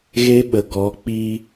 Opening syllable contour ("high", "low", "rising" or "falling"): high